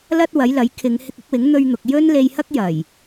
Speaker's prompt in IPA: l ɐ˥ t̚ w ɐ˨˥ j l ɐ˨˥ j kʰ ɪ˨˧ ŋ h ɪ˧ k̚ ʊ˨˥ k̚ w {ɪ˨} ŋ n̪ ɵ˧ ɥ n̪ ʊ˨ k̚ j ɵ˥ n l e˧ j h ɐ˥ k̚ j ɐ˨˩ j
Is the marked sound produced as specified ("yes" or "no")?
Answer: no